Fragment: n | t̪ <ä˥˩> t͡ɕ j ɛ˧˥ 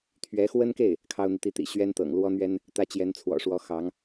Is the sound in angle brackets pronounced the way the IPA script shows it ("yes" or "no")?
no